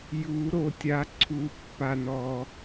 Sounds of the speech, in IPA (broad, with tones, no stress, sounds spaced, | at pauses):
j u˨˩˦ ɾ o˨ tʲ a˨˩˦ ǀʰ u˨˩˦ pː a˨ n ɔ˨